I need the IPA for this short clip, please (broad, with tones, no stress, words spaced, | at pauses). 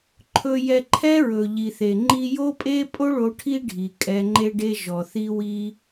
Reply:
ǃʰɵ˨jɛ˨ǃʰɛ˧ ɹɵ˨ ʎi˨θe˨ŋ͡ǃi˦ jo˦pʼe˦ pʼo˦ɭo˧ ʈʰi˦ɖʱi˨ kʼɛ˧ŋ͡ǃe˦ɖe˦ʒɔ˨ θi˦wi˦